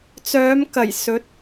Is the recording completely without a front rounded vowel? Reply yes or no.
no